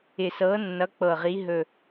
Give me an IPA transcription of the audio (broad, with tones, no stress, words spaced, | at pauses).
ɪ˨˩sɤ˨˦nːʌ˨˦ k͡pɤ˨˩ʁi˨˦ ɦɵ˨˩